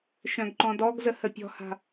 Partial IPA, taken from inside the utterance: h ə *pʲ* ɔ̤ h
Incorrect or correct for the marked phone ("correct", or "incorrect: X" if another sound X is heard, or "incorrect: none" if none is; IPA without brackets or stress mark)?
correct